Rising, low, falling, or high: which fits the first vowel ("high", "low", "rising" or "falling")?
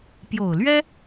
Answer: low